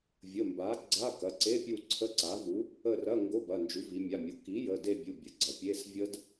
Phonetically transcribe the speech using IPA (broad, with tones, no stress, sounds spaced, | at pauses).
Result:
vʲ ə˩˧˩ m b a˩˥ ɡ͡ǀ a˧˥˧ k ɐ˩˧˩ ǀ e˧˥˧ pʲ u˦˨ ǀʰ ə˧˥˧ ǀ a˩˥ v u˩˥ | ə˦˨ r ɐ˧˥˧ ŋ ɡ o˧˥˧ b ɐ˩˧˩ n d͡ʒ u˩˥ v i˩˧ mʲ a˩˧˩ mʲ o˩˥ k i˩˥ j ə˩˧˩ d e˦˨ bʲ u˩˧˩ bʲ ə˩˧ ɡ͡ǀ ɐ˩˧ pʲ e˧˥˧ s vʲ ə˦˥ d